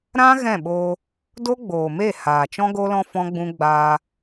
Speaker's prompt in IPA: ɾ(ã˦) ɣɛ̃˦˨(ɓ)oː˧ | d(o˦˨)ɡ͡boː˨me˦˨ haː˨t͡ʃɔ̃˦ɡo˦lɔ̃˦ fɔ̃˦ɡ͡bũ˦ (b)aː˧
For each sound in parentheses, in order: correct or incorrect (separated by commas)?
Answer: correct, correct, incorrect, incorrect